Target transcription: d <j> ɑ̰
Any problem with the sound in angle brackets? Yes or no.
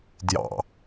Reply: no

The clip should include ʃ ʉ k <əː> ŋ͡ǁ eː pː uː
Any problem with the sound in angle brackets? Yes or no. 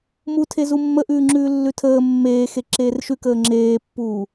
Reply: no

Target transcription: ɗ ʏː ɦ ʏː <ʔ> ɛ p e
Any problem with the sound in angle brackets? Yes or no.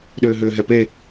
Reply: yes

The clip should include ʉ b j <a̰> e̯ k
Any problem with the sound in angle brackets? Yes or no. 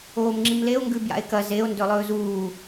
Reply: no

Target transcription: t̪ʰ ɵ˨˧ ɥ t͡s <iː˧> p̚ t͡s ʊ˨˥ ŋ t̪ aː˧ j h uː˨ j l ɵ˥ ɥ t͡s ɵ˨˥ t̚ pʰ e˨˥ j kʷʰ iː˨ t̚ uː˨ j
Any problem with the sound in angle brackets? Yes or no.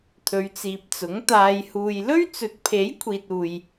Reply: yes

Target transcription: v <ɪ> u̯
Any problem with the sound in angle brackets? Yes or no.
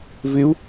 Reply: no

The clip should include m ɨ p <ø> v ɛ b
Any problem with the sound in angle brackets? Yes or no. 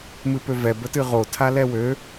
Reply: no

